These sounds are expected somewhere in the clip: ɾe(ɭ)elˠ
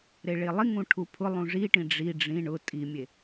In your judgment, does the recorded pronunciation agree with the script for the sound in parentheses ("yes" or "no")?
yes